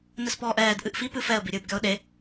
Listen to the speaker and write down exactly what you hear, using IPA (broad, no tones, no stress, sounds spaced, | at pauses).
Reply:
n ɘ s p ɔː ʔ ɛː d ʔ ɨ ʔ f i p ɨ f ɛ ə̯ b i ɾʲ ɨː b ɡʲ ɔ ʊ̯ ɗ e